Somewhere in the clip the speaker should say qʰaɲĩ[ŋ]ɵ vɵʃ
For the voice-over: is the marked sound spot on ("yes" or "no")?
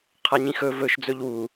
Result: no